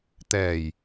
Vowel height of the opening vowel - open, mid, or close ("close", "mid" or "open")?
mid